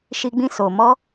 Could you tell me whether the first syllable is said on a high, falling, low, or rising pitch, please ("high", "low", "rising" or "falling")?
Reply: high